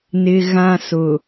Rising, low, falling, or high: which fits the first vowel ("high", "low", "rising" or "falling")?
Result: high